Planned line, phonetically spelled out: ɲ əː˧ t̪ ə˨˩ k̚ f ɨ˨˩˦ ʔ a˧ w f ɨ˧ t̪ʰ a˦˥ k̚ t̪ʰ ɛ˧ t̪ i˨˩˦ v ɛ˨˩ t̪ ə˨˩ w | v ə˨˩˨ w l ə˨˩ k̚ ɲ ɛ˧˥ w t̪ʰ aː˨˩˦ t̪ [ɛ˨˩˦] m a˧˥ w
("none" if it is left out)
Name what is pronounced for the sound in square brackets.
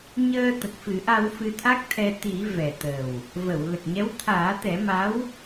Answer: ɛ˨˩˦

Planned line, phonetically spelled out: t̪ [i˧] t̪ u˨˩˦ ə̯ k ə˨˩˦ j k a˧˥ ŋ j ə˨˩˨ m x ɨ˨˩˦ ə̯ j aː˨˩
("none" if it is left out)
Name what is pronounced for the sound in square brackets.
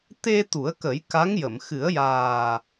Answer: e˧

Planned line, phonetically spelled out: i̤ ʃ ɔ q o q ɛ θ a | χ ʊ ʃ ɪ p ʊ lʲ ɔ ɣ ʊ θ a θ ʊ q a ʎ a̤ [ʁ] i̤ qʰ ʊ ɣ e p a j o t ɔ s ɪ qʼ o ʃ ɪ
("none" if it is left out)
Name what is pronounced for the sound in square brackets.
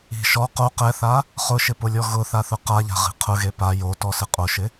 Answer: ʁ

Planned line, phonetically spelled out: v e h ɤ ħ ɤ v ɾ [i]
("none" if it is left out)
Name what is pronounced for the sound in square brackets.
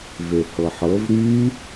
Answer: y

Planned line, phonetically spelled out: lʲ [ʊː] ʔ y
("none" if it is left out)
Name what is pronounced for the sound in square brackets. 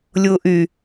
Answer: ʊː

